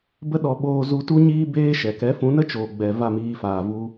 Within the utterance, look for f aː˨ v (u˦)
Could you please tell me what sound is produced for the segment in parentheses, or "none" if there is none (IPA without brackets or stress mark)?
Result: u˧